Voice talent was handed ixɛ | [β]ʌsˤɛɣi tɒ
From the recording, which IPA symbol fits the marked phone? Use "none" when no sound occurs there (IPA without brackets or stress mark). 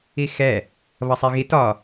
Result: β